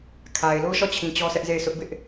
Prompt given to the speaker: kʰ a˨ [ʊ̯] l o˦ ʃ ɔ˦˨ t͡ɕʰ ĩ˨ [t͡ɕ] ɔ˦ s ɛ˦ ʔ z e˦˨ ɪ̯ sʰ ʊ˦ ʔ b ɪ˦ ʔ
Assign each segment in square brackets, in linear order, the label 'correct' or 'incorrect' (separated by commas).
incorrect, correct